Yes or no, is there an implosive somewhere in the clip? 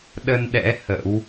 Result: yes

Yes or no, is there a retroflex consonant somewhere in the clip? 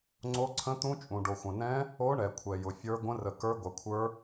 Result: yes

